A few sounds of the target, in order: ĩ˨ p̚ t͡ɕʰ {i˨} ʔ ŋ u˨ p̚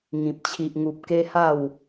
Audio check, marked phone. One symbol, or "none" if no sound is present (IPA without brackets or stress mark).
i˨